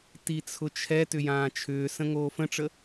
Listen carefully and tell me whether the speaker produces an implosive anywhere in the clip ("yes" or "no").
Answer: no